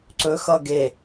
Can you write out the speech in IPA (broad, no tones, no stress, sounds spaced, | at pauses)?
ǀ ɵ x ʌ ɡ e